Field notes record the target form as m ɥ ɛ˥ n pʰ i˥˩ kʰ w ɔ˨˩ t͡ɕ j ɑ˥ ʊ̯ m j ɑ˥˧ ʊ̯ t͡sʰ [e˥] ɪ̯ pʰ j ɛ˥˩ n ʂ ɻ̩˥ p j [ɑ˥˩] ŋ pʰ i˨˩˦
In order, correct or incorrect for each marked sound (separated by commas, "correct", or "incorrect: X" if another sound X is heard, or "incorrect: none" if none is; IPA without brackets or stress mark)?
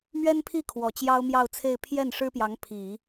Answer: incorrect: e˥˧, incorrect: ɑ˧˥